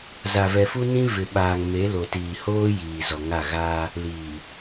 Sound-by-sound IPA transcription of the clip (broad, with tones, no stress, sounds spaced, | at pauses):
z a˨ v ɛ˨ f u˦ n ĩ˦ v ɪ˨ ɓ aː˨ ŋ m e˨˦ l o˨ t iː˨ h oː˦ j iː˨ z ɔ˨ ŋ a˦˨ ɣ aː˦ | l iː˨